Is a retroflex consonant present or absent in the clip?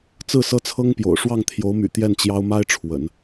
present